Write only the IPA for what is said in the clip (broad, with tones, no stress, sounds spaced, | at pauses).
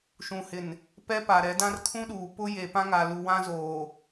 ʃ ũ˨ h ɪ˨ n | p ɛ˦ p a˨ ɾ ɛ˨˦ d ã˦ r kʰ ũ˦ ɗ uː˨ p ʊ˦ j e˨ p ã˦ ŋ a˨ l u˨ w ã˦ z oː˨